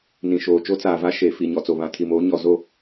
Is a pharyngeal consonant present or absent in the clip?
absent